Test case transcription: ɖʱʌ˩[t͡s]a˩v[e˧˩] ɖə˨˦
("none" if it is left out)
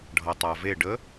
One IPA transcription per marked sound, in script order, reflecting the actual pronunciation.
tˤ, e˧˩

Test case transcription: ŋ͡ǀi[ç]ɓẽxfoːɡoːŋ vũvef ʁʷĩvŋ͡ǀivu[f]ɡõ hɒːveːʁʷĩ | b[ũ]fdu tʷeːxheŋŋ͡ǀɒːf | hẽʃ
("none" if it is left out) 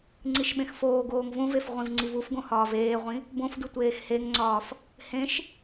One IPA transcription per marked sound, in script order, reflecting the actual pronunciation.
ʃ, f, õ

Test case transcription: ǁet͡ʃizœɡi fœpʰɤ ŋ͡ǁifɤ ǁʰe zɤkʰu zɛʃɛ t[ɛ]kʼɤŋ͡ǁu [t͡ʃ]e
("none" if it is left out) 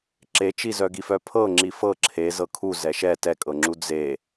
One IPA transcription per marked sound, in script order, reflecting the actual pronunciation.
ɛ, d͡z

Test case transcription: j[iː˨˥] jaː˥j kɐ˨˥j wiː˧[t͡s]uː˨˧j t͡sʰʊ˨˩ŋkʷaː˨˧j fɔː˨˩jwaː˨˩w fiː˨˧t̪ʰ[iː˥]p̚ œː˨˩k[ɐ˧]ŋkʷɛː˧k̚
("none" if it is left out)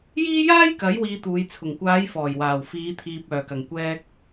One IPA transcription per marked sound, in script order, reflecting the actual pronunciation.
iː˥, t̪, iː˨, ɐ˨˩

